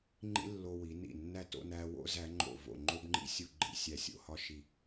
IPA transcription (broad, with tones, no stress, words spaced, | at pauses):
ŋ͡ǃḭ˥lːo˧wi˩˧ nḭ˧˩nːæ˥˧ to̰˥˧næ˧ wo̰˥˧zæ˩˧ ŋ͡ǃo̰˧˩vo̰˧˩ŋ͡ǃo˥bŋ͡ǃḭ˥ sʲu˥˧ɡ͡ǃḭ˥˧ sʲæ˧˩sʲo̰˧˩hɒ˥˧ʃi˧˩